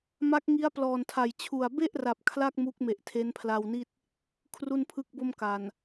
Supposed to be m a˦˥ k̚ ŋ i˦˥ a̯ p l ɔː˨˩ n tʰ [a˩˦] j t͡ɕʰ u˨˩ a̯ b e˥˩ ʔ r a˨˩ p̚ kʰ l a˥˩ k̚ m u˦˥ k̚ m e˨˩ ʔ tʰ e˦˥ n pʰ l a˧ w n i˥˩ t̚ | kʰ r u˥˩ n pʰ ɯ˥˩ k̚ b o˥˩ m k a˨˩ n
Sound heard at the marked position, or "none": a˨˩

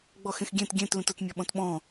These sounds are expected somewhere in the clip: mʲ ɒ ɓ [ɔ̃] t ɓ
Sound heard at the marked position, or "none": ɔ̃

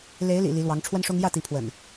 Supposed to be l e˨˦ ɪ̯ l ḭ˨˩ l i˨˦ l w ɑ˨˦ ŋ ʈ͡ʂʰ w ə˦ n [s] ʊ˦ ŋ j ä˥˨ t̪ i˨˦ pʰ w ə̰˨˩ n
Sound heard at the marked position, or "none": ʂ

